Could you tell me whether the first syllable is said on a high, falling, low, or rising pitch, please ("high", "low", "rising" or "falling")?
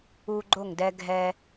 high